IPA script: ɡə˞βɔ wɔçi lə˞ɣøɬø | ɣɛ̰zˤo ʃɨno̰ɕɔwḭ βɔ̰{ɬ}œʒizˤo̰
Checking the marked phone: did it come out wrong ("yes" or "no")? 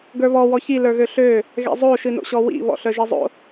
no